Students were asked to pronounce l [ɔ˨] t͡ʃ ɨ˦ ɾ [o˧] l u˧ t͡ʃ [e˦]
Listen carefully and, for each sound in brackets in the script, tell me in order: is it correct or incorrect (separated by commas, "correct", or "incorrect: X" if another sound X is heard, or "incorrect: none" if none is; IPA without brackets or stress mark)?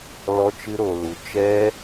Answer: incorrect: ɔ˦, correct, incorrect: ɛ˦